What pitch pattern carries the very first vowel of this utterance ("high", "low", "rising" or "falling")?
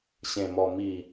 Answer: low